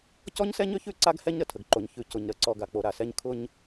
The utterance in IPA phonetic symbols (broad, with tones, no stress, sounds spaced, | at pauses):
c ɔ˦ ɲ s ɛ˦ ɲ ø˦ ç ʉ˦˨ ǀ a˦ ɡ h ɛ˦ ɲ ɾ ə˨ tʰ ə˨ ɡ ǃ o˨ ɲ ç ʉ˨ c ʊ˨ ɲ ɾ ə˨ ǀ ɔ˨ ɡ a˨ k͡p o˨ ɾ a˨ s ɛ˦ ɲ kʰ ʊ˦ ɲ